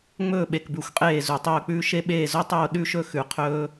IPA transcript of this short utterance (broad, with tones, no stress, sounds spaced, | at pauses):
ŋ͡m ɵː˥˧ ɓ e˧ k b ʉ˧˩ xʷ qʼ eː˥˧ z u˧˩ tˤ ɵː˥˧ k͡p ʉː˥ ʃ e˥ ɓ eː˥˧ z o˥ tˤ oː˥˧ ɗ ʉ˥˧ ʃ ɵ˥˧ x ʉ˧ qʰ ɵː˥